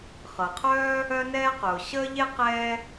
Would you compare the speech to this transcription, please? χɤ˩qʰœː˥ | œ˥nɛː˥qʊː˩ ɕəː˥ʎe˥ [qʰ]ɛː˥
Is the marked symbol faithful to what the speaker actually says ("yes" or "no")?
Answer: no